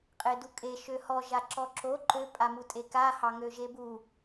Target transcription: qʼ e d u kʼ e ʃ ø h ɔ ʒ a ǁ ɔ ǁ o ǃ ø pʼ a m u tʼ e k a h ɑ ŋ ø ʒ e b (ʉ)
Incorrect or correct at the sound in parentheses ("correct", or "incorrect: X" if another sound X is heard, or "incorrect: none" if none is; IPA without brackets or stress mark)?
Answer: incorrect: u